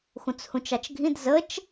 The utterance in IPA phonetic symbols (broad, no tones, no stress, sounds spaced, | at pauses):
x ũ t͡s h ũ t͡ʃ ɑ t͡ʃ ɡʱ ĩ d z ə t͡ʃ